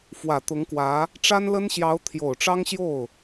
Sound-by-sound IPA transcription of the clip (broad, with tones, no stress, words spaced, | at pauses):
fwä˨˩ t̪ʊ˧˥ŋkwä˧˥ | ʈ͡ʂa˥nlə˥nɕjɑ˧˥ʊ̯ t̪ʰjo˨˩ʊ̯ʈ͡ʂɑ˥ŋɕjo˥˩ʊ̯